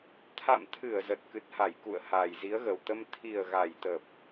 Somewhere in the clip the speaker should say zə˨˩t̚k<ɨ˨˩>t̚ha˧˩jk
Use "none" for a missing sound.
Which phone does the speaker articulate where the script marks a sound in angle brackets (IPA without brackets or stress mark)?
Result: ɨ˨˩